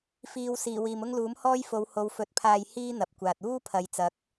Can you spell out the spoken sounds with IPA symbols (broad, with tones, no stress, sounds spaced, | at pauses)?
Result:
f iː˨ w s iː˨˩ w iː˨ m ʊ˥ ŋ l uː˨˥ m h ɔː˥ j f o˨˧ w h o˨˧ w f ɵ˨˥ t̚ pʰ aː˧ j h iː˥ n̪ ɐ˨ p̚ kʷ aː˨ t̚ uː˥ pʰ ɐ˨˧ j t͡s ɐ˨˥ k̚